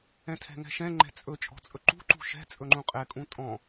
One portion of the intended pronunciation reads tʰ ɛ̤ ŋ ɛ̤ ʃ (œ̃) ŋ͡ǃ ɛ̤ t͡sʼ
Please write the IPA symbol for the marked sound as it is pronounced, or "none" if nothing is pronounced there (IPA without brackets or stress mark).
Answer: ɛ̃